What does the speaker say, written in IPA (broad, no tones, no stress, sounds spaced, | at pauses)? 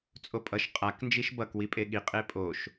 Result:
t͡sʼ o pʼ ʌ ʃ qʼ a k n d͡ʒ i ʃ b ʌ k w i pʼ e ɠ i qʼ e pʼ o ʃ